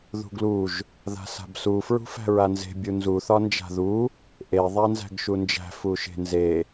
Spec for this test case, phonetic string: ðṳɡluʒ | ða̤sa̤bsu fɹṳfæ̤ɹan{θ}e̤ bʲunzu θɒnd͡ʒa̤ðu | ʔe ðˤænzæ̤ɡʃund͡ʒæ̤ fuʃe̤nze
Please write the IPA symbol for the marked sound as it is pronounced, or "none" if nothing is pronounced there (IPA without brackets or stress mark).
z